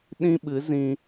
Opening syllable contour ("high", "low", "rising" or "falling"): high